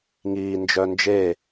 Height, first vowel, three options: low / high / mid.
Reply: high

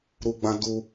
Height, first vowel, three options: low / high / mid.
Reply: high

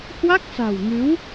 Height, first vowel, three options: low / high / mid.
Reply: low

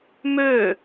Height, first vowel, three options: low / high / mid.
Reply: mid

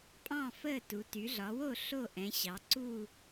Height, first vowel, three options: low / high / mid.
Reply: low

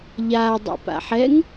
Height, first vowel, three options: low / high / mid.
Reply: low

